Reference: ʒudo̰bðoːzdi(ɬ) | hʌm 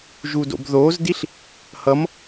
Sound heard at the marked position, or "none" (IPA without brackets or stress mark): ɬ